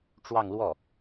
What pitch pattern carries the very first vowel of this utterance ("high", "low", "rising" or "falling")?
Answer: falling